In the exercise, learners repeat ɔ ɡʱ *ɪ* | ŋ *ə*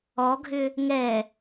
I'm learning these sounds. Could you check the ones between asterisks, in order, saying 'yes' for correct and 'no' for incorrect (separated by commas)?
no, no